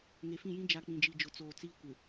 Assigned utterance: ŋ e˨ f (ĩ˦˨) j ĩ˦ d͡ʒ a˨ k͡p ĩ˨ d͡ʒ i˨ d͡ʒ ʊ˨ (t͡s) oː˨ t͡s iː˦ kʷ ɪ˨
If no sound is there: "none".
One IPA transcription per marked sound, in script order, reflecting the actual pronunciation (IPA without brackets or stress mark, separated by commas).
ĩ˦˨, t͡s